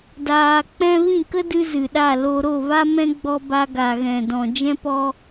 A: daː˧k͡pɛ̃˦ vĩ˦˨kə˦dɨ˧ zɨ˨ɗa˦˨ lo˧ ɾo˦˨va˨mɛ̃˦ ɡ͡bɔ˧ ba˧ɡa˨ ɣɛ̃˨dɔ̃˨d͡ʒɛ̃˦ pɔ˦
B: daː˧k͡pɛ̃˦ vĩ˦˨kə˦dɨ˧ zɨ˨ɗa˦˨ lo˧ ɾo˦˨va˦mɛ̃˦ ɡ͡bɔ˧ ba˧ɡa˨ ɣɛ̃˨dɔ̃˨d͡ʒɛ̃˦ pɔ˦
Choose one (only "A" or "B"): B